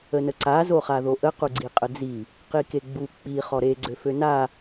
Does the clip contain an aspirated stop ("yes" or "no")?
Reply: no